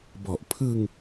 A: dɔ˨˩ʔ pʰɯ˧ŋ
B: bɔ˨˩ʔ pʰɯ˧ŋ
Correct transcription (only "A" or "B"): B